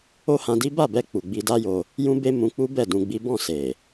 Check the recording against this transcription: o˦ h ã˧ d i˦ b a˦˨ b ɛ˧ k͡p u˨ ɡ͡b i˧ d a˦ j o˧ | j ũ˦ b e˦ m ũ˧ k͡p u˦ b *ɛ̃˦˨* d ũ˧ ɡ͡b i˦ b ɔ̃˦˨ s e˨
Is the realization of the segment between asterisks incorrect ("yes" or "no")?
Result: yes